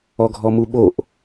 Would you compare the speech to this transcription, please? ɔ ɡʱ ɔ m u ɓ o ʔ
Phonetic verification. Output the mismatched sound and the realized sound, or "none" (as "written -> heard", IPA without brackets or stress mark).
none